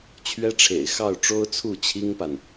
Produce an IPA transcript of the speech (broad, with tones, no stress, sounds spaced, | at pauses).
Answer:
t͡ɕʰ ɥ ɛ˥ ʈ͡ʂʰ ḛ˨˩ ɪ̯ x ɑ˥˩ ʊ̯ ʈ͡ʂ o˥ ʊ̯ t͡sʰ u˥˩ t͡ɕʰ i˥ ŋ p a˨ n